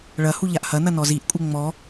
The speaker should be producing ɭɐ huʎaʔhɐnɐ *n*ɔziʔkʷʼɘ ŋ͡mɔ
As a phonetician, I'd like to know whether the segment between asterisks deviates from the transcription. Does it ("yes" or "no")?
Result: no